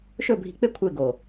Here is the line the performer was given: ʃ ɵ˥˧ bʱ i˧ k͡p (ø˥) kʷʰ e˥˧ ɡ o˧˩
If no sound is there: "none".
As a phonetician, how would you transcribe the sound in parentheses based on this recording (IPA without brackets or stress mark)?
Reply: e˥